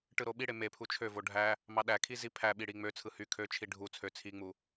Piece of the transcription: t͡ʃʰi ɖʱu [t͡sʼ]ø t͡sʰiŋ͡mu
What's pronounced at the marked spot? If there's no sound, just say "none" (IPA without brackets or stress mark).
t͡sʰ